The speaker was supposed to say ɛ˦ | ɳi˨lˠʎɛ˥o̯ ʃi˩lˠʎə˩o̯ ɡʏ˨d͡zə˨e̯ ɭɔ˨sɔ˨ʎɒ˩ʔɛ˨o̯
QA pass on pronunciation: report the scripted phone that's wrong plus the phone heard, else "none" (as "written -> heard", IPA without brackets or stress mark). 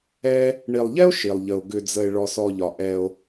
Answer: none